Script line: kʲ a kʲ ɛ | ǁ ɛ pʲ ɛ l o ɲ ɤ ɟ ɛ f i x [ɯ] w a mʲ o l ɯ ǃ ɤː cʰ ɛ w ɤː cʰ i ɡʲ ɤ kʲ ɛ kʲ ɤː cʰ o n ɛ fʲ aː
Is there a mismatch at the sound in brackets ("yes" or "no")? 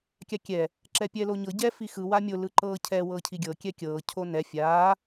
no